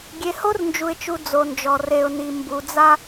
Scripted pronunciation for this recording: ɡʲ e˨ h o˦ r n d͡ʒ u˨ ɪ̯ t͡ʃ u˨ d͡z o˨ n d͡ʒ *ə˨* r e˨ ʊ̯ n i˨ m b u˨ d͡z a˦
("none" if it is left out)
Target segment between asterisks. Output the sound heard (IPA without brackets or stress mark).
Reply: ɔ˨